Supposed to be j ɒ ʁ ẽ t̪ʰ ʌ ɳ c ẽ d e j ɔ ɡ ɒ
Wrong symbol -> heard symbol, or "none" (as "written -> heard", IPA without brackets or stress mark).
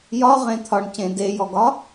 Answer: ʌ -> ɒ